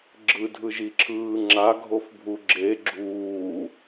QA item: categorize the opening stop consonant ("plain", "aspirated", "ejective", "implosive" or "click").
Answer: click